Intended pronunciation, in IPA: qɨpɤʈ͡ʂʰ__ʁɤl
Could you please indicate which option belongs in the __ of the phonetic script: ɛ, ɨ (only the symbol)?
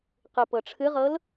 ɨ